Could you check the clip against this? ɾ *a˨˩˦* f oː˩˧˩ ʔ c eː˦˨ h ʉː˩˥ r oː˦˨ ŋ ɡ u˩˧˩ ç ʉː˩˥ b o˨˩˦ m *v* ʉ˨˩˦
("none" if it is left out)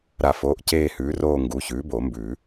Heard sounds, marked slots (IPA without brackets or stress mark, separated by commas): a˨˩˦, b